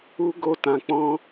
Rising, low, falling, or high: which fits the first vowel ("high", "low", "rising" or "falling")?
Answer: high